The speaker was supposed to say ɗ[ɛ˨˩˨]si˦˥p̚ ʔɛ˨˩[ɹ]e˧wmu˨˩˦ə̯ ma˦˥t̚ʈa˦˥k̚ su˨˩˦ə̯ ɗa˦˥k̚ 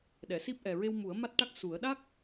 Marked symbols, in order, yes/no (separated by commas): yes, yes